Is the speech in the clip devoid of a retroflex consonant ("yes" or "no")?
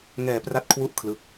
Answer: yes